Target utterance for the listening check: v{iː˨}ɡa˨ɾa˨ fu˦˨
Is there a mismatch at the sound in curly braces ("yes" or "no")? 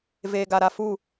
yes